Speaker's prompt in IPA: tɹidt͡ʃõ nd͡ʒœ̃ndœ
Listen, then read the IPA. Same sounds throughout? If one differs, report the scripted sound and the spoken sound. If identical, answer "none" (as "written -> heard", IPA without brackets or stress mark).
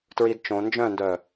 none